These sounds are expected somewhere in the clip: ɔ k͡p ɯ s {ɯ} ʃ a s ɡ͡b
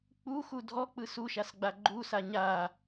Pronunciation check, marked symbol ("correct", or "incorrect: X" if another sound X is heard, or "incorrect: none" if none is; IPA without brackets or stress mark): incorrect: u